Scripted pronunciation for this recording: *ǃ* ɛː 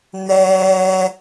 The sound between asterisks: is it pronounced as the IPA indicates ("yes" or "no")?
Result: no